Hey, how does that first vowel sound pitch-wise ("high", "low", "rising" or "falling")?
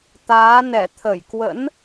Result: rising